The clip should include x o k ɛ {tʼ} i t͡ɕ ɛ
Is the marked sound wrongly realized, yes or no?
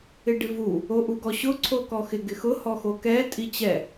no